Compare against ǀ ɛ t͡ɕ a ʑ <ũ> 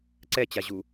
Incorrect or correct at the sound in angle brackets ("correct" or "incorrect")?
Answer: incorrect